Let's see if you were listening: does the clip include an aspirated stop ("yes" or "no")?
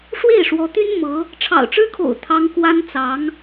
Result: yes